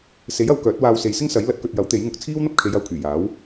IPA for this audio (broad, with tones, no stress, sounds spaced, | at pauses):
s e˨˥ j ɐ˨˧ w k œː˨˥ t̚ w aː˧ w s e˨ j s ɪ˥ ŋ s ɐ˨˥ j l ɐ˨˥ t̚ k ɵ˨ t̚ j ɐ˨˥ w t̪ e˨˥ j ŋ ʊ˨˥ k̚ t͡sʰ iː˥ w n̪ ɐ˥ p̚ kʰ e˨˧ j ɐ˨˧ w kʰ yː˨˩ j aː˨˥ w